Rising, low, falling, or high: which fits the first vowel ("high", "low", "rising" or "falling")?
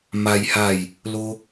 high